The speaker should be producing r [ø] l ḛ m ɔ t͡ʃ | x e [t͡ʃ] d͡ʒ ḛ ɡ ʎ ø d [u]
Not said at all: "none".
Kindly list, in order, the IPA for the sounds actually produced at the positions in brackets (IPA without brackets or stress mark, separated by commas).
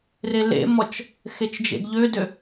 e, t͡ʃ, ø